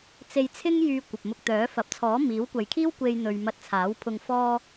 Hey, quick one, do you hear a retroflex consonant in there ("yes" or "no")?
no